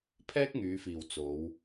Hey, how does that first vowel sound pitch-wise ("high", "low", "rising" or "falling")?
high